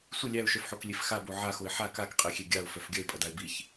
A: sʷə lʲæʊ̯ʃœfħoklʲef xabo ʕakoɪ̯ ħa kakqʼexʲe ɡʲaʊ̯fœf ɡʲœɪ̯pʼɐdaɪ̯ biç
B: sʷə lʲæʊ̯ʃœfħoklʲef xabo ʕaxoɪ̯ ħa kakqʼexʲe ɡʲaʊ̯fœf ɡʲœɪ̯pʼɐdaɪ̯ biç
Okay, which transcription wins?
B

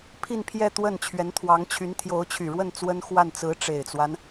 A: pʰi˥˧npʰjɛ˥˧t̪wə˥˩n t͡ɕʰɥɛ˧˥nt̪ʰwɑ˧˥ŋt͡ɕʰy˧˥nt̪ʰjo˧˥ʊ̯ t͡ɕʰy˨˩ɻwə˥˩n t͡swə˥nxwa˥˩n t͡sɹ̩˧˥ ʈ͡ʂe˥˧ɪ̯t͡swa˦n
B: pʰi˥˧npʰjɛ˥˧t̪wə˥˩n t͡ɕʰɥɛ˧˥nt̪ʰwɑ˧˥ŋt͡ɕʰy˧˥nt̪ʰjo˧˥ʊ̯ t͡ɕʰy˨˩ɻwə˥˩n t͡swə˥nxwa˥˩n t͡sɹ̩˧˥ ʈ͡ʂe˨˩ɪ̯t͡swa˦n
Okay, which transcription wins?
B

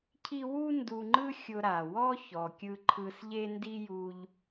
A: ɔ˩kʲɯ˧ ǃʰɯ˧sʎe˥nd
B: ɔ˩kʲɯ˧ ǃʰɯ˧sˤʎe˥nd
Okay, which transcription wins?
A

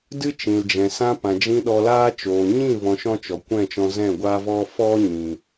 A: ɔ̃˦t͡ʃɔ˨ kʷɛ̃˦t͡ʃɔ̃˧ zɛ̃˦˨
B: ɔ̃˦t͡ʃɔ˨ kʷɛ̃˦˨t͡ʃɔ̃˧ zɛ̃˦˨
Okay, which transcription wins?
B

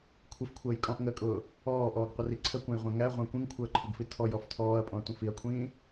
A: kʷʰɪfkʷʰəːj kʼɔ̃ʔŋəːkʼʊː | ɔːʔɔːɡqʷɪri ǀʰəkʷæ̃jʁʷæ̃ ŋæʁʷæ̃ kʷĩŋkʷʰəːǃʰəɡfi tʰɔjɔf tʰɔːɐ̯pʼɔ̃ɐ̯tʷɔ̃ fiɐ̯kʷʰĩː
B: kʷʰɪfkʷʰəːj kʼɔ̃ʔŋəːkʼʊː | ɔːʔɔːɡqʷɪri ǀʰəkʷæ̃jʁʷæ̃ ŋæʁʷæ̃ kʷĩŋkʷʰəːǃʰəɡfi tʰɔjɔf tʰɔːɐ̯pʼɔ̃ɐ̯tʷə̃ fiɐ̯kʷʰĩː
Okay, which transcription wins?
B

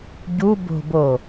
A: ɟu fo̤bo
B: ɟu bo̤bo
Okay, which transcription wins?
B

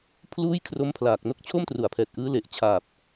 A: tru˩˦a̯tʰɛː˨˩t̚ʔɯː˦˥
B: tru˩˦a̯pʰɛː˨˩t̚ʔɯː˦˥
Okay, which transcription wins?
B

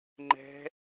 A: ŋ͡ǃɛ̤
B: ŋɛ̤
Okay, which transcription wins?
A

